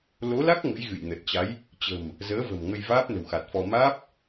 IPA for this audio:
l o˨˦ l a˦˥ k̚ ŋ ə̰˧˥ j ɣ ɨ̰˧˨ j n ə˨˩ t̚ t͡ɕ a˨˦ j | t͡ɕ ə̤˨˩ m | z əː˨˦ v ə̤˨˩ m ŋ ə˧ j v aː˦˥ p̚ n ə̤˨˩ w x a˨˩ t̚ f ɔ˧ m aː˦˥ p̚

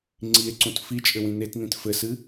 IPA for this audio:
ŋ͡ǀ i e̯ ǀ ũ t f i t͡ʃʼ ɘ w ĩ n e t n ĩ t f ɘ s ɨ

